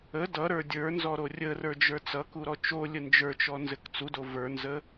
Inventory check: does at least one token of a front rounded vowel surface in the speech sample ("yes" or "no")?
no